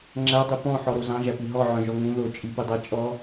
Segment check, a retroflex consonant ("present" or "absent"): absent